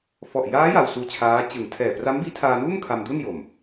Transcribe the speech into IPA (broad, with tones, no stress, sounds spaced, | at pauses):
f ɔ˨˩ ʔ j aː˦˥ j a˧ w s uː˦˥ t͡ɕʰ aː˦˥ t͡ɕ ɯ˨˩ ŋ tʰ ɛː˨˩ p r a˦˥ m b iː˦˥ tʰ aː˧ n uː˥˩ m kʰ a˧ m d u˥˩ n j o˨˩ m